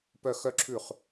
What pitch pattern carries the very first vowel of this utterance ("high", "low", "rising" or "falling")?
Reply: falling